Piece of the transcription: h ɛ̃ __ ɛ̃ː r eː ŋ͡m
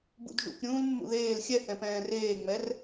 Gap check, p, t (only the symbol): p